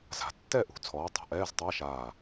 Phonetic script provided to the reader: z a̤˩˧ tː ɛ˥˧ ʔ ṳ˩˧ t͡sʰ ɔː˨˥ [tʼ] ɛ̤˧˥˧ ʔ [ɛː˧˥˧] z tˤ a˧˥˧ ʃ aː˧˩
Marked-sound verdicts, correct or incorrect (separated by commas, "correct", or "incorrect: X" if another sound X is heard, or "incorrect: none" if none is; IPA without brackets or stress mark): incorrect: tˤ, correct